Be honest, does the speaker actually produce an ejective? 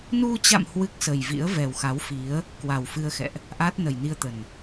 no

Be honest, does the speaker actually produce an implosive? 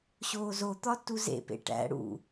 no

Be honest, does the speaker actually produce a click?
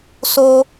no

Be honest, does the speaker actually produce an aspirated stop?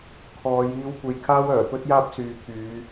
yes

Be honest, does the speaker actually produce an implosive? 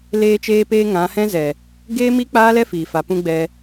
no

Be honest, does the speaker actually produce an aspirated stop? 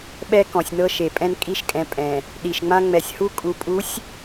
no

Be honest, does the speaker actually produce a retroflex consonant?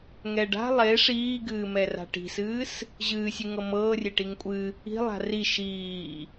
yes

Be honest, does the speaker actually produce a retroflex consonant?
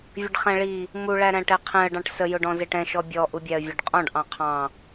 yes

